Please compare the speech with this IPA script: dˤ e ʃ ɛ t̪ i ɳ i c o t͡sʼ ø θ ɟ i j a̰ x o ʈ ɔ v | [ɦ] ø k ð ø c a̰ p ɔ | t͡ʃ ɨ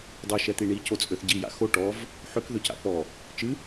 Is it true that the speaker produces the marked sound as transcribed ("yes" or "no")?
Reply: no